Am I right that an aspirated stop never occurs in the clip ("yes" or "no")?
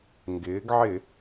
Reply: yes